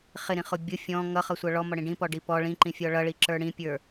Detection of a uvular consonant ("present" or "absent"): present